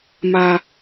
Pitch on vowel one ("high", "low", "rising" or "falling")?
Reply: low